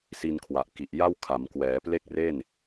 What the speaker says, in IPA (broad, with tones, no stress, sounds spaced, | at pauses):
s i˧ n kʰ w a˨˩ ʔ k i˨˩ ʔ j a˥˩ w kʰ a˩˦ m k w ɛː˩˦ p l e˥˩ k̚ r e˥˩ n